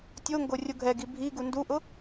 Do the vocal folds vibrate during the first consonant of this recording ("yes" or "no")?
no